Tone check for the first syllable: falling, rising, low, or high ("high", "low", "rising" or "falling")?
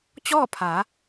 falling